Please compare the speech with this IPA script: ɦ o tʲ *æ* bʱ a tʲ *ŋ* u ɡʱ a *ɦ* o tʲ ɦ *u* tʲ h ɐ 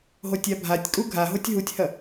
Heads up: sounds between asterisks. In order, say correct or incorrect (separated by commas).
incorrect, incorrect, correct, correct